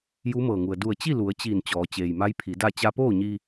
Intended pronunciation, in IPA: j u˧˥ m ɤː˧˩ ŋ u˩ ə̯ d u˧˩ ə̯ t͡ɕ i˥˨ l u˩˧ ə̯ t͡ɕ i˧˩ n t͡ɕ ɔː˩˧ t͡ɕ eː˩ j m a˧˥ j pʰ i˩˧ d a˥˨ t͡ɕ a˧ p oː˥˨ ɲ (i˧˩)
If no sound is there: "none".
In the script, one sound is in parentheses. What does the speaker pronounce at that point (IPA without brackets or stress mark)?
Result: i˧